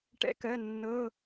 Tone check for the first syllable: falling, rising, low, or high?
rising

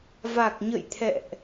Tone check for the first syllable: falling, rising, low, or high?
low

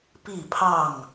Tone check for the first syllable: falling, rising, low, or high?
falling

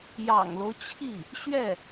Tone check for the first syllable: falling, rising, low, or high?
low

